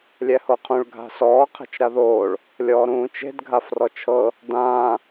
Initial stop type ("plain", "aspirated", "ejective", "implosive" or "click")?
aspirated